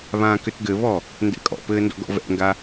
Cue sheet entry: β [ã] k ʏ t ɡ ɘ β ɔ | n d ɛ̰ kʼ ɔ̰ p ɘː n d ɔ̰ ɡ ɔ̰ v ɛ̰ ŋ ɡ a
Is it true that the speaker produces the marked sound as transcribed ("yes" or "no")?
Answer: no